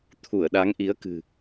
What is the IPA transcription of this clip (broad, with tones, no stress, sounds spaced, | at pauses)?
t̪ʰ u˧˩ ə̯ ɗ a˨˦ ŋ ʔ i˨˦ ə̯ k ɨ̤˨˩